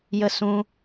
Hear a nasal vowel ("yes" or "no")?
yes